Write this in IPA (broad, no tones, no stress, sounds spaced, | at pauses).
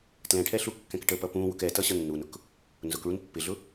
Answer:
t l ɛ̃ ʈʰ ɛ ɬ u kː ɛ̃ k ʈ ə p ʌ p ũ w ʊ k ɛ t ʌ ɕ ʌ nː u n ʊ k | n z ʊ k ɭ u n pː ɪ ɮ ʊ